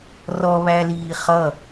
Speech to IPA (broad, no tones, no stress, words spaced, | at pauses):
rɔ βæliːχʌ